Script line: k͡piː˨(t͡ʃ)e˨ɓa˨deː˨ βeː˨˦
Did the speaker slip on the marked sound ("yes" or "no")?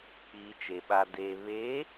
no